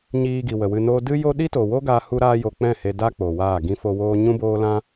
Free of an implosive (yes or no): no